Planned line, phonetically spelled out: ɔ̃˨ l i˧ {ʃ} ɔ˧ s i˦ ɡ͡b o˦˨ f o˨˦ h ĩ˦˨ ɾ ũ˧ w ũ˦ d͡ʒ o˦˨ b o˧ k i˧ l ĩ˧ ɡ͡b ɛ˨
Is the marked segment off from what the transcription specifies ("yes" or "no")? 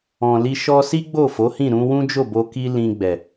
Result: no